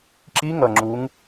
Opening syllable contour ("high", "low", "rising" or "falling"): rising